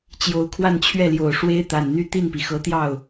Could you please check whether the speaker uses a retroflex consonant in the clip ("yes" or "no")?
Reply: yes